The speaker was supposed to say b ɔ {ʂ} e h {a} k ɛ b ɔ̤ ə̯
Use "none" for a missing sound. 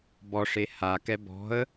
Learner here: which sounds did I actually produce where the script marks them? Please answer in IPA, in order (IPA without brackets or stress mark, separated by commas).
ʂ, a